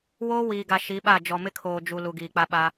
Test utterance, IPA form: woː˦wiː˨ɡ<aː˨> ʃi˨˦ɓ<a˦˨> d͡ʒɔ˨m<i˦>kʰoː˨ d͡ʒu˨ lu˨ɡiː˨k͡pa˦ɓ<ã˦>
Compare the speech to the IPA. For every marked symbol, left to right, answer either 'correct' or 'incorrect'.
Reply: incorrect: a˨, correct, incorrect: ɪ˦, incorrect: a˦

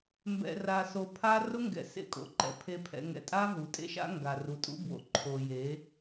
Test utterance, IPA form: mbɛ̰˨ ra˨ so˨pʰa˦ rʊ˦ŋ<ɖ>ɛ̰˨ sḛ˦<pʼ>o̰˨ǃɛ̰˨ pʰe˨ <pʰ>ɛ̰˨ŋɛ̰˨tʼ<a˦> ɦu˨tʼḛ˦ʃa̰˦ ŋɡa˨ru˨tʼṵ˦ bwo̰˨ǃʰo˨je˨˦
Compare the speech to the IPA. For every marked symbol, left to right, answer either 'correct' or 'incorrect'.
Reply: incorrect: ɡ, incorrect: kʼ, correct, correct

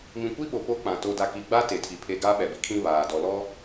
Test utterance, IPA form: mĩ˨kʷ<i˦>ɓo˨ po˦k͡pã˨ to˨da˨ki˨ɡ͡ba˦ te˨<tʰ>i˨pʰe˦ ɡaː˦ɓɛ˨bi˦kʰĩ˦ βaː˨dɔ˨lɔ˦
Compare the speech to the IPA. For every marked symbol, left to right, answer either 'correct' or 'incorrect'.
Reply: correct, correct

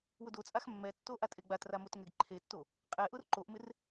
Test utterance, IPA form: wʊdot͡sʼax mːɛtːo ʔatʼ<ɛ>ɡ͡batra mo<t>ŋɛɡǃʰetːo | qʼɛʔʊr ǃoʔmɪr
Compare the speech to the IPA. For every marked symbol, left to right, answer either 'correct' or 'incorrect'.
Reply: incorrect: e, correct

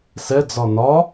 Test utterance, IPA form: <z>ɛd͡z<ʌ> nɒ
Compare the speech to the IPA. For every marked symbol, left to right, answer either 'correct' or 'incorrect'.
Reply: incorrect: s, incorrect: ɒ

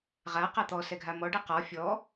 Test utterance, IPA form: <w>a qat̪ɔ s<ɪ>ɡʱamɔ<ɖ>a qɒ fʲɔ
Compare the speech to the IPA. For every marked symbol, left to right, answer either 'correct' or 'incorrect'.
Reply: incorrect: ʁ, incorrect: ɛ, correct

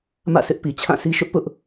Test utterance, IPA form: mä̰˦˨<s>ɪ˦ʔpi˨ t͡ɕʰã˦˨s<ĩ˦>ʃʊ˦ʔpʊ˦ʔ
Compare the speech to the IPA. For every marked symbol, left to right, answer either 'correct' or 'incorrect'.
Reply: correct, incorrect: i˦

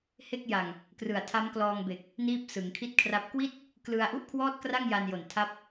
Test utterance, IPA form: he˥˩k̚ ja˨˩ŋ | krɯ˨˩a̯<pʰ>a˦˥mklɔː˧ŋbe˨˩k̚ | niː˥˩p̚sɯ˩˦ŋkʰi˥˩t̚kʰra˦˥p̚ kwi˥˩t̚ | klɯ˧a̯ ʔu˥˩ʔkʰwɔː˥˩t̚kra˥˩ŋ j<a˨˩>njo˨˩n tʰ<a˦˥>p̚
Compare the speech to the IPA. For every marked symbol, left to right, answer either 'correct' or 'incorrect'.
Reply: incorrect: tʰ, incorrect: a˧, correct

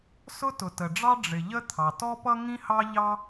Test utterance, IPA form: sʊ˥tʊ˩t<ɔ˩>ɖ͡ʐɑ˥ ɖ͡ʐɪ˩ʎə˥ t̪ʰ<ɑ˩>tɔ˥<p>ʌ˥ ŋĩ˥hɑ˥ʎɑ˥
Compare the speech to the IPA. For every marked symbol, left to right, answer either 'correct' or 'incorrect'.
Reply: incorrect: ə˩, correct, correct

